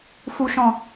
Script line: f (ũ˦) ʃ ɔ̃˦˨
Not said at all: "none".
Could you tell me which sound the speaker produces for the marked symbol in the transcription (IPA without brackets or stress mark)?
u˦